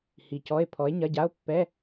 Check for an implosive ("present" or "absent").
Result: absent